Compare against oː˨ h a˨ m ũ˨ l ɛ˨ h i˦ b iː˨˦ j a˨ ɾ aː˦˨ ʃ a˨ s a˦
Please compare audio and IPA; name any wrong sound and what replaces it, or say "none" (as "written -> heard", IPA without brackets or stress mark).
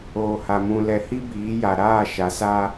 none